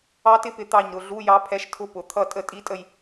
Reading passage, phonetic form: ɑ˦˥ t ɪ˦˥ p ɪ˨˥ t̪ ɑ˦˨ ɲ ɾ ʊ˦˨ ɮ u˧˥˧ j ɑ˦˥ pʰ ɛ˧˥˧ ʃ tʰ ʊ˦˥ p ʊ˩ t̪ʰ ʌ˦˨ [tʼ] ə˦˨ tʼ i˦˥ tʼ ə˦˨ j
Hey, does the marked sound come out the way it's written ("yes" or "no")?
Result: yes